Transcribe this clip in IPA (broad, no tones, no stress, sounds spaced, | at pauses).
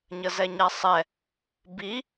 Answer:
ɲ ə z ɛ ɲ a sˤ ɛ | b i